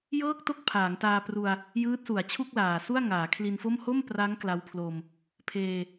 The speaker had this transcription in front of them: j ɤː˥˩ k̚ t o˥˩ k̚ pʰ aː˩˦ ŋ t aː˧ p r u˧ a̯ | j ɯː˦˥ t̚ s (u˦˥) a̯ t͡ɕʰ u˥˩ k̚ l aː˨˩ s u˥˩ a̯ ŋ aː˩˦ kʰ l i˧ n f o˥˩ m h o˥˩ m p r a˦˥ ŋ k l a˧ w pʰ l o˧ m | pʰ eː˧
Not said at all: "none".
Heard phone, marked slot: u˩˦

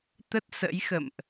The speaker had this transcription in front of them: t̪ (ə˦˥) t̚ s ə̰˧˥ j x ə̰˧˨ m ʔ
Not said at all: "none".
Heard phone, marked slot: ə˦˥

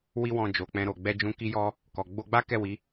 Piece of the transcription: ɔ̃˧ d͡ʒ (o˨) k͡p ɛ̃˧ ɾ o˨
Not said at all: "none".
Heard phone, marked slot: o˨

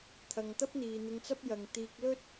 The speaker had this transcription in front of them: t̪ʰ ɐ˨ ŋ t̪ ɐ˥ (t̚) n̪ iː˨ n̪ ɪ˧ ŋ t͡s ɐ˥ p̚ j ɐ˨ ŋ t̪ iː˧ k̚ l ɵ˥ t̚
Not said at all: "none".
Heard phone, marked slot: p̚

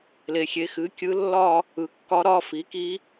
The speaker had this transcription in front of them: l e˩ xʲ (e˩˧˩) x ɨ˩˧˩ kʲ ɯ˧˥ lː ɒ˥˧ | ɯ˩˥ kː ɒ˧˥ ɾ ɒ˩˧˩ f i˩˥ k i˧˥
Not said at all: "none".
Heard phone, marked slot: e˩˧˩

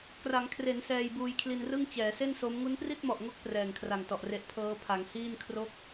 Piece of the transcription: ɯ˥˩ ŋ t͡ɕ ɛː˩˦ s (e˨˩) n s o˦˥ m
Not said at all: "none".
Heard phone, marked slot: e˥˩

